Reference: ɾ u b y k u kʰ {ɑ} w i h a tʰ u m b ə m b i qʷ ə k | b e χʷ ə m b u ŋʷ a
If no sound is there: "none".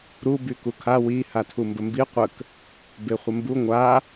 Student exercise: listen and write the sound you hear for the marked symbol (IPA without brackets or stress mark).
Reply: a